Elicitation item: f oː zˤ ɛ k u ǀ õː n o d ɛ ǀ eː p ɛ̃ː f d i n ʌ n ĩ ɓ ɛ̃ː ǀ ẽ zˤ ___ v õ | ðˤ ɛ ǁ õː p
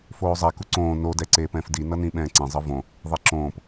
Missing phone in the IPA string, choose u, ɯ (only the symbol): ɯ